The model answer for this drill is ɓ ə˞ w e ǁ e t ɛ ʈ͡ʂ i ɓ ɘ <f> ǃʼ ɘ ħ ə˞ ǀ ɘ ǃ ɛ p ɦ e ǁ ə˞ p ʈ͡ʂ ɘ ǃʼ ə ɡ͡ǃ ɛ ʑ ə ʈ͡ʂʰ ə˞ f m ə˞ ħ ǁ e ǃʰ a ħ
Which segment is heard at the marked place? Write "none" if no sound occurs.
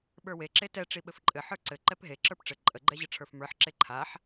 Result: f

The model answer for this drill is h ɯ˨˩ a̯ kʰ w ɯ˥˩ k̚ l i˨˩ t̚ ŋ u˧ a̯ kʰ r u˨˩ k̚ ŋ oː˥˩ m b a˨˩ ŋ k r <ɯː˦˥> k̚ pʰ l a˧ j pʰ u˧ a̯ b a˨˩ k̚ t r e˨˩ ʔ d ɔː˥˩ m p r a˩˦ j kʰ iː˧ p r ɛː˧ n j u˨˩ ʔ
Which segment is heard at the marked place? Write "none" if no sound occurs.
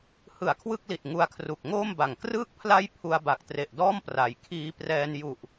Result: ɯː˦˥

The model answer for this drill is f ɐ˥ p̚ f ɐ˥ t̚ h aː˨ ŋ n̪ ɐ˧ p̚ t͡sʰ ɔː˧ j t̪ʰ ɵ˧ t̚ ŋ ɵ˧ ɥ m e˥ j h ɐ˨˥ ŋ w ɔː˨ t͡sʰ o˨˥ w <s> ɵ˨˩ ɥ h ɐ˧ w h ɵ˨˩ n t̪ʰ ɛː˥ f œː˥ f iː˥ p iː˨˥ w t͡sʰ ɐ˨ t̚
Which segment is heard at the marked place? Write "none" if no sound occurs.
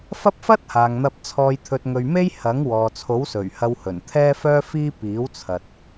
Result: s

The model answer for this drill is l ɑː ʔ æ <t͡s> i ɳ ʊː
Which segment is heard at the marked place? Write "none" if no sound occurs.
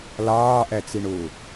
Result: t͡s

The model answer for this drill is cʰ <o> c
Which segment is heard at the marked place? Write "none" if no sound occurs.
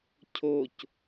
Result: o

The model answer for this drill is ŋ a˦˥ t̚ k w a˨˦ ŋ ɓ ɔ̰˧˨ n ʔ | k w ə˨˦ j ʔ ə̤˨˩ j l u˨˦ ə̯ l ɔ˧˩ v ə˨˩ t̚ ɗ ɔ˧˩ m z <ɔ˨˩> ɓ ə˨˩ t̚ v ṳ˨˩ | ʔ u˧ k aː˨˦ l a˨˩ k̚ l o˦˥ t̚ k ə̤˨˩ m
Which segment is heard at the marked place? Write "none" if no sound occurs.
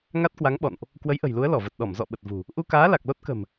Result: ɔ̰˧˨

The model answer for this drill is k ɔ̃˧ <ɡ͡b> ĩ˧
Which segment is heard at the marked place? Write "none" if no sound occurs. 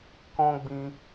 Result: ɡ͡b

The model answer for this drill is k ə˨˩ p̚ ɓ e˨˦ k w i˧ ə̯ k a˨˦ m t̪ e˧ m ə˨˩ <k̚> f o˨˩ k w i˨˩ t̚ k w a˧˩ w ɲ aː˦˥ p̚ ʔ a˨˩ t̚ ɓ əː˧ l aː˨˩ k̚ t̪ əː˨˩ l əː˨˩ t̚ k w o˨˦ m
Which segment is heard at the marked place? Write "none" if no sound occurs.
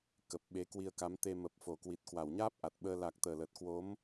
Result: p̚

